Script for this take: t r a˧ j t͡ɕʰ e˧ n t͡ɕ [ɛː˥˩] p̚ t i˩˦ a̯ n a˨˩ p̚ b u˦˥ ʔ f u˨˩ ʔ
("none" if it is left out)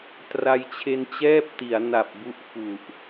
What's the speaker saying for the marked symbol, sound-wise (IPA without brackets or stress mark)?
ɛː˥˩